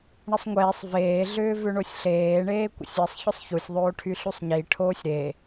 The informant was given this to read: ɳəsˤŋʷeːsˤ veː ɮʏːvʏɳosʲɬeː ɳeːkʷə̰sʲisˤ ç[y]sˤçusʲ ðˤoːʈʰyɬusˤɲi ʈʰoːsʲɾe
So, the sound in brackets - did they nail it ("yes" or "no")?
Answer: no